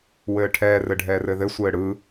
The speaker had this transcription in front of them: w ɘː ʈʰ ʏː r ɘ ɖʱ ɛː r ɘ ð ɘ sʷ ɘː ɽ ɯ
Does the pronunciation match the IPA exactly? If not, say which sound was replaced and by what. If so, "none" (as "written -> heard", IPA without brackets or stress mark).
ʏː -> ɛː